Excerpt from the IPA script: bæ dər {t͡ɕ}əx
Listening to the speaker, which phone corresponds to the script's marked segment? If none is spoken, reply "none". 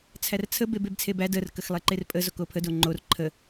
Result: k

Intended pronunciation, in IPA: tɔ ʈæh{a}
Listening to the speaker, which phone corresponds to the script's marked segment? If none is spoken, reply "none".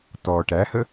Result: ə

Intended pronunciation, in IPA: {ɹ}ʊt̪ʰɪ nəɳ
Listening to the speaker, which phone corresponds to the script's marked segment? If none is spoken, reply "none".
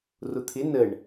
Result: r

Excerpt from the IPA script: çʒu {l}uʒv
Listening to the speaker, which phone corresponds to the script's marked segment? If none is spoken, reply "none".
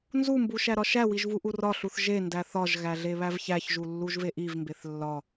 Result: lː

